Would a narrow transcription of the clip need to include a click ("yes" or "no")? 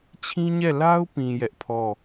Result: no